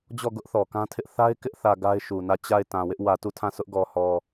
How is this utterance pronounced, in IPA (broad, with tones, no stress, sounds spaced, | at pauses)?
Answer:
d͡ʑ ɔ˦˨ ɡ ʊ˦ ʔ θ ɔ˨ k ã˦ tʰ ɪ˦ ʔ θ a˦ ɪ̯ k ɪ˦ ʔ θ ä˨ ɡ a˦ ɪ̯ ʃ u˨ n ä˦˨ t͡ɕ a˦˨ ɪ̯ t ã˨ w ɪ˦ ʔ w ä˨ t u˦˨ tʰ ã˦˨ sʰ ʊ˦ ʔ ɡ ɔ˨ h ɔ˨